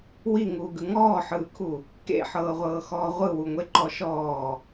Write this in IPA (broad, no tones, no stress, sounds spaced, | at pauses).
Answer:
w i ŋ uː ɡ ɯ ŋ ɔː ħ ɯː kʰ u | k ḛ ħ ɤː ʁʷ ɤː x ɔː ʁʷ ɯ w u ŋʷ e ǃ ɔ ʃ ɔː